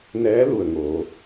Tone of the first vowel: rising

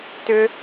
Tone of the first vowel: high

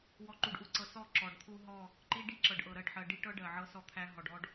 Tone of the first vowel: low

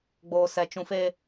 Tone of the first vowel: high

